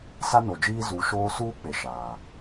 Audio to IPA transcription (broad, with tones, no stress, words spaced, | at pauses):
sa˦no˨d͡ʒiː˦ zu˨˦ ʃoː˦ suː˦k͡pe˨ ʃaː˨